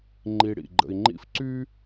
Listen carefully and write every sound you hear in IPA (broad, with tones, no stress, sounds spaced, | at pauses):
ŋ͡ǃ i˨ ɽ ḭ˩ ɡ͡ǃ ə̰˨ i̯ ŋ͡ǃ ḭ˦ f ǀ y˥